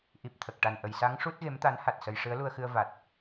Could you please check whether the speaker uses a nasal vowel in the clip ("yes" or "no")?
no